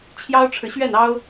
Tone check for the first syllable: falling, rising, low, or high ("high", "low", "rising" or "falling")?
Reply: high